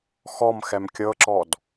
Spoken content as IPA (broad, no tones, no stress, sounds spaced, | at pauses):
x ɔ m x ɛ m kʲ ɤ ǁ ɔ d